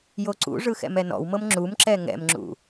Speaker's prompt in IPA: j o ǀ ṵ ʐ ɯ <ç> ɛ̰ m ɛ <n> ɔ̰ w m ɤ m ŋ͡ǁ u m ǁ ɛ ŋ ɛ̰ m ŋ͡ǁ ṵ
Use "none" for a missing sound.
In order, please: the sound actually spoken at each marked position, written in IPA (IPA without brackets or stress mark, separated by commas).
x, n